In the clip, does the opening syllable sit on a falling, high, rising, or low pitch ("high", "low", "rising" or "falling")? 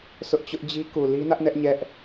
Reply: high